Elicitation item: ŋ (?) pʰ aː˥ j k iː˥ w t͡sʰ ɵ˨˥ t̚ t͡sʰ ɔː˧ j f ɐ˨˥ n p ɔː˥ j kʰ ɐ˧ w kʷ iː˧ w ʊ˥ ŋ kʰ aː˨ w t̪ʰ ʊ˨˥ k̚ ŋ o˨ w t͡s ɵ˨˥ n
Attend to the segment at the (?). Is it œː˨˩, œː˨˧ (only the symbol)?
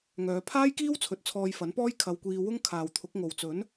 œː˨˧